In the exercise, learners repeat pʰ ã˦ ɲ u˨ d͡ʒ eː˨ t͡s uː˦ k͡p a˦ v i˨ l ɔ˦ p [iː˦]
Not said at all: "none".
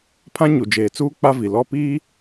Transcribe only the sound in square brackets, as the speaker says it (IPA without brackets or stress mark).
iː˦